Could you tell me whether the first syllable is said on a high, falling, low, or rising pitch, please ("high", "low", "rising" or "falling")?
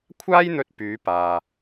high